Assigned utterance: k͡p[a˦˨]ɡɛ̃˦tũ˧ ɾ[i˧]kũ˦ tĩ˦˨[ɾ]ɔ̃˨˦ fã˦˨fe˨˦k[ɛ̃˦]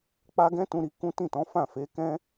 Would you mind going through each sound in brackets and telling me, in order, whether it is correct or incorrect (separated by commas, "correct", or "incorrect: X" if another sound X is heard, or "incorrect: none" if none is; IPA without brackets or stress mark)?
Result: incorrect: a˦, correct, incorrect: t, correct